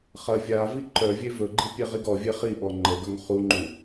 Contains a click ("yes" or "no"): yes